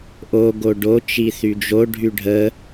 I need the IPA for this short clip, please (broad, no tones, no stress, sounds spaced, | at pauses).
ʔ o ɡ o ɖ o t͡ʃ i θ y d͡ʒ o ɖʱ y ɖʱ ə